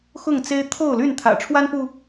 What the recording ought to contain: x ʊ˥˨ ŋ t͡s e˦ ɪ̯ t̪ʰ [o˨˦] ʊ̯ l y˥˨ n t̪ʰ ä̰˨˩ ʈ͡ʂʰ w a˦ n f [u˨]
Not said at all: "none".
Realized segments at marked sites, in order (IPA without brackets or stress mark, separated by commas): o˥˨, u˨